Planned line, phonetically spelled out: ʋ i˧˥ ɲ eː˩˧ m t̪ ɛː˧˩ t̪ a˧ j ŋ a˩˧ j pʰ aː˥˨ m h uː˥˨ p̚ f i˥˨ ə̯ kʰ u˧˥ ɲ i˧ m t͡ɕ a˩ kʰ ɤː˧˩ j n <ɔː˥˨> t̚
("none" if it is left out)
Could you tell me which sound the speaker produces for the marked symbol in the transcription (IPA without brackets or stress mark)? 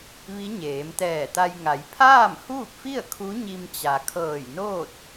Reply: oː˥˨